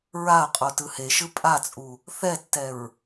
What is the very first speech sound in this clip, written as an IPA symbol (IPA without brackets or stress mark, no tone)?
ɹ